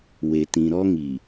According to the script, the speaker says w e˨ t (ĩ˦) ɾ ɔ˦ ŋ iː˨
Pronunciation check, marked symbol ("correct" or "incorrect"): incorrect